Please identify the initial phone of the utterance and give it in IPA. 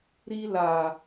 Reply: ɾ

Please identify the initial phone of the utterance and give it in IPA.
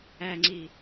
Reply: æ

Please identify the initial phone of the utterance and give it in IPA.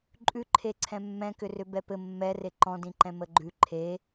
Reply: ǃʼ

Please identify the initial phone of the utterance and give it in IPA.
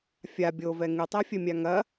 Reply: fʲ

